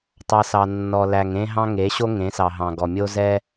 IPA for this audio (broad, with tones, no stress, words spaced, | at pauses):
tˤɑ˦s ɑ˨nːɔ˨læ˨ŋ ẽ˦ɦɑ̃˦ ŋe˨˦ɕo˦ ŋẽ˨˦sɑ˨ɦɑ̃˨ɡɔ˨ mʲo˦zɛ˦